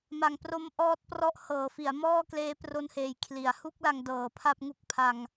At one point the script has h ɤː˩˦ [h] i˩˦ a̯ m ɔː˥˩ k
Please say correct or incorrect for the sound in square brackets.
incorrect: f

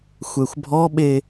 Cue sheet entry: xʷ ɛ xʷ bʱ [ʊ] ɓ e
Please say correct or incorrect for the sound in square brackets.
incorrect: ɔ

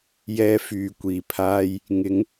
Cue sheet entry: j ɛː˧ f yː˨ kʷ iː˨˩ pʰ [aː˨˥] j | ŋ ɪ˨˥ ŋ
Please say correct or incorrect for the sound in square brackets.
incorrect: aː˥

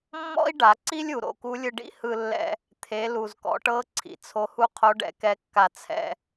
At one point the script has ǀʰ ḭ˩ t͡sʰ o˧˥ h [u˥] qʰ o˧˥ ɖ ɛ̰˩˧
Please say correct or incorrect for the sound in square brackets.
correct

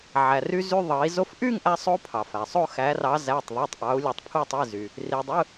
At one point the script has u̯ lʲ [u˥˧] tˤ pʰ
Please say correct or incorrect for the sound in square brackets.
incorrect: u˩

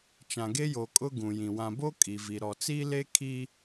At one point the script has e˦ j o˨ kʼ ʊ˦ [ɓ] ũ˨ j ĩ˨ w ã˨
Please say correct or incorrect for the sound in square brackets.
incorrect: ɡ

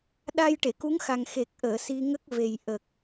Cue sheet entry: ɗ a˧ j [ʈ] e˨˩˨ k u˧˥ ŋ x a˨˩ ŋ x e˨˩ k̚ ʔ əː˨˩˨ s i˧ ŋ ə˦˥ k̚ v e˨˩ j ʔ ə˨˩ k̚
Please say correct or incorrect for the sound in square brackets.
correct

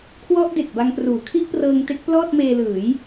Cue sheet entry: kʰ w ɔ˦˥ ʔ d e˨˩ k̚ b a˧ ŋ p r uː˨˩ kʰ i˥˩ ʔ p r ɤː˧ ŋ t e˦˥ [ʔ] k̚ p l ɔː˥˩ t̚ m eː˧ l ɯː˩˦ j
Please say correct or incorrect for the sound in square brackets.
incorrect: none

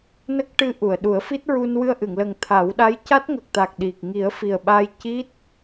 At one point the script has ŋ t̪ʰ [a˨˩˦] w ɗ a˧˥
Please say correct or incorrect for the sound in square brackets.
correct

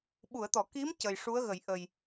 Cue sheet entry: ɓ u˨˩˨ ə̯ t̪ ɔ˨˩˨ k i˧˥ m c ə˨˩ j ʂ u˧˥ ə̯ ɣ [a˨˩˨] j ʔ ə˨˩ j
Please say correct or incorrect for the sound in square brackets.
incorrect: ə˨˩˨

